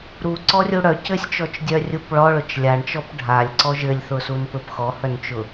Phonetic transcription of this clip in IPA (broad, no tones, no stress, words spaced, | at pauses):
ɾuǀɔrʲu ɽœ cɘsʲt͡ʃɔt͡ʃdʲœrʲup ɭɔɭʊt͡ʃ lʲaɳt͡ʃɔp ɖʱalʲǀɔ ʒɘlʲθʊsunpɘp xɔhœnt͡ʃʊ